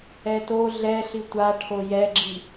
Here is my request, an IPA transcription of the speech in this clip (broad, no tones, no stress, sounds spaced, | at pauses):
ɛ t o ɮ ɛ ɬ i tʷ a ʈʰ o j ɛ ɡ͡ǁ i